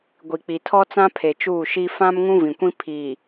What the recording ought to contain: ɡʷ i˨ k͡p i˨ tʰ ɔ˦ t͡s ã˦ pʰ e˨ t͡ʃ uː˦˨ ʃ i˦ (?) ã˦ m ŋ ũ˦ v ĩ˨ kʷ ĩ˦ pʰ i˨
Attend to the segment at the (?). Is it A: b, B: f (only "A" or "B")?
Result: B